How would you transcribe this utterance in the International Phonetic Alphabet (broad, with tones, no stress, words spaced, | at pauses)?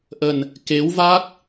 ʔə˨˩n | ke˨˦wva˦˥k̚